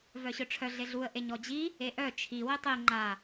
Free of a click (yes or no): no